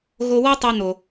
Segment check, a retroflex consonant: absent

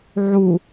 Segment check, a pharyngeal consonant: present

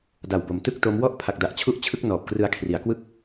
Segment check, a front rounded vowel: absent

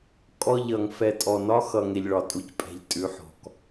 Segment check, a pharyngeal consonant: present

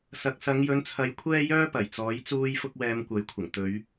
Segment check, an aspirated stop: present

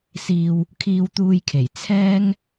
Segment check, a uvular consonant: absent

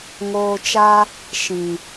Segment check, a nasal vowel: present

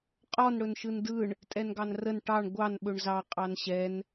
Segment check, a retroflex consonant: present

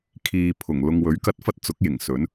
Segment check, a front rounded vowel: absent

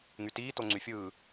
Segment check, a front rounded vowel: present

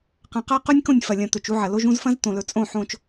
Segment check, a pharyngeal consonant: present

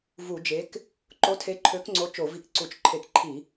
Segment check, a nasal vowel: absent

